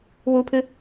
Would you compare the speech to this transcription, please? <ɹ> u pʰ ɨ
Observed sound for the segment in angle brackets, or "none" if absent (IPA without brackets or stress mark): w